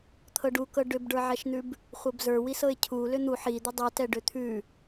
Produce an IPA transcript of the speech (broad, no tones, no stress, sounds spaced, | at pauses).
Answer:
t̪ʰ ɤ ɖ u k ɤ ɖ ʏ b ɖ ə˞ ʕ ɛ ʃ n̪ ʉ b | χʷ ɤ b z ə˞ w i s ɤ ɪ̯ cʰ u l ʏ n̪ u ħ i d̪ ʏ dˤ ʉ t ɛ ɖ ʏ t̪ʰ ʉ